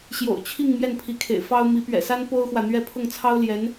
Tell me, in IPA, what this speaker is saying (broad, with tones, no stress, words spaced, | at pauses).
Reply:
ɕjo̰˨˩ʊ̯t͡ɕʰi˥˧ŋ mjɛ˥˩npʰi˧˥kʰḛ˨˩ɪ̯fɑ˥ʊ̯ mi˧˥pɥɛ̰˨˩sa˥n po˥ʊ̯xwä˨n̪ɥɛ˥˧ pʰʊ˥˩ŋt͡sʰɑ˥ʊ̯ ljɛ˧˥n